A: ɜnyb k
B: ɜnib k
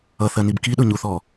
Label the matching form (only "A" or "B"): B